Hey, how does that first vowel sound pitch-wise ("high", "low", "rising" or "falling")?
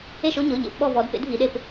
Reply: falling